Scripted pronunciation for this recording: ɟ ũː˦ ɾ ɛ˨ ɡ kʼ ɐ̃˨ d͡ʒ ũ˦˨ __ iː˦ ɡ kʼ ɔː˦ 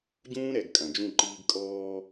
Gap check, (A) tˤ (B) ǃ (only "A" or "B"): B